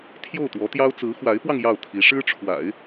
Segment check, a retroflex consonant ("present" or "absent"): present